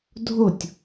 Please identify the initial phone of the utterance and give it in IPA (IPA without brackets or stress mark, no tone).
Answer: dʱ